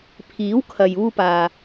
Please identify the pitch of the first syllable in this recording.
rising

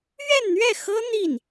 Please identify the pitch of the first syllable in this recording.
falling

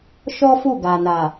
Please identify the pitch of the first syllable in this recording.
high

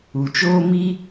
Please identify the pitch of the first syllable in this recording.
low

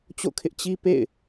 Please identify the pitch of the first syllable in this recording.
falling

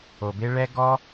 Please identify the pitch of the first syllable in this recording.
low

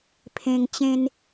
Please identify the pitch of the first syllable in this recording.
high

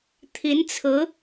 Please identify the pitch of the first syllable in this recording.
rising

